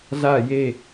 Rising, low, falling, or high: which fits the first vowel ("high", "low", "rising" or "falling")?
falling